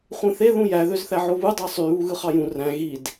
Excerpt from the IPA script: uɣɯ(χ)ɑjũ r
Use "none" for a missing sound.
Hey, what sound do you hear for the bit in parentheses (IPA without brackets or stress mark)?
χ